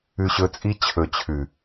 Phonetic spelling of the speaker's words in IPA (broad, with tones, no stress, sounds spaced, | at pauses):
ʉ˧ ɕ ɵ˧ t͡sʼ i˦ t͡ɕʰ ɵ˨ t͡ɕʰ ʉ˨